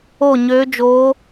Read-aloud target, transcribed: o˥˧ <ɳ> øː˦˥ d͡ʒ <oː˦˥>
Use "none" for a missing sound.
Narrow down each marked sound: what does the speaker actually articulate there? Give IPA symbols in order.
ɲ, oː˦˥

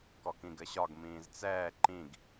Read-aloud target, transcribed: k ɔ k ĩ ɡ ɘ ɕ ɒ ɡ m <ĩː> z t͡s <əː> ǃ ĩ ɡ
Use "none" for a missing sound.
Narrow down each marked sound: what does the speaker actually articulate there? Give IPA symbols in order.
ĩː, ɛː

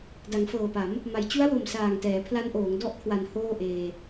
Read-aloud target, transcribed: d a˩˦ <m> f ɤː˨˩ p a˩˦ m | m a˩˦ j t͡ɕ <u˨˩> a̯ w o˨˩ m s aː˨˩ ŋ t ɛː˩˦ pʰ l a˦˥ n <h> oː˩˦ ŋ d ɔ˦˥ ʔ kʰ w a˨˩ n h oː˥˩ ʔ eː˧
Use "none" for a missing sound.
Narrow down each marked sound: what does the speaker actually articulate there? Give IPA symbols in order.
ŋ, u˦˥, ʔ

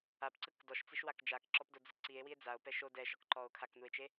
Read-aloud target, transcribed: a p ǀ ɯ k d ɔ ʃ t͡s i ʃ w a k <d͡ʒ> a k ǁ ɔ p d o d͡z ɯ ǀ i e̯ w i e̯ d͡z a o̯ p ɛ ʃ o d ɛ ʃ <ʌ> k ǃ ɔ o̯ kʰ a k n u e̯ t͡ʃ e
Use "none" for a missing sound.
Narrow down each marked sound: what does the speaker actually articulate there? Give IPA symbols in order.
d͡ʒ, ɔ

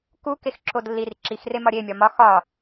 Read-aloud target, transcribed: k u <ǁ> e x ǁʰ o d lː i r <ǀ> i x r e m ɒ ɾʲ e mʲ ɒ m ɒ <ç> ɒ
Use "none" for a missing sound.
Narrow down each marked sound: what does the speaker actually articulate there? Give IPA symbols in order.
k, ǁ, x

